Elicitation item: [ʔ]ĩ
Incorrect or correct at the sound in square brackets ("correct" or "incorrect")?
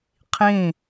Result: incorrect